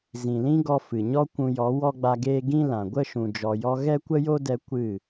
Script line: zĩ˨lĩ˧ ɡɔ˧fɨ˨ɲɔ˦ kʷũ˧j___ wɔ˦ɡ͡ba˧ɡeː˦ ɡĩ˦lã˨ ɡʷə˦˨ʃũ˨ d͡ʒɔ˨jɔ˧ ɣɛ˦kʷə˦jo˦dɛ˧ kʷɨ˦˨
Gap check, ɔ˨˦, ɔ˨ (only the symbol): ɔ˨˦